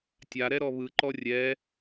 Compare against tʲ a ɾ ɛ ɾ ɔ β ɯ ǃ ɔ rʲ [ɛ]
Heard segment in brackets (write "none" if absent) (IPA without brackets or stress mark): ɛ